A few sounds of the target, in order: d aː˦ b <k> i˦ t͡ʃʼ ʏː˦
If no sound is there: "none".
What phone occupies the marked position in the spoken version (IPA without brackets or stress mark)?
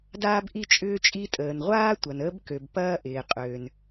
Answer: ʔ